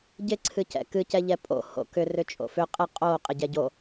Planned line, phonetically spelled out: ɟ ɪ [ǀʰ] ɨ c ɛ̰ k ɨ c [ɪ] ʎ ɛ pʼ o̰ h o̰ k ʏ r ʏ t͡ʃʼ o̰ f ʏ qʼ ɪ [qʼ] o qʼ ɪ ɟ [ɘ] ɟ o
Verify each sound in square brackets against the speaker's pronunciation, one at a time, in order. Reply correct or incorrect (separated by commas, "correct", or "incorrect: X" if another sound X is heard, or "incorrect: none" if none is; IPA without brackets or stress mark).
correct, incorrect: ɛ, correct, incorrect: ɛ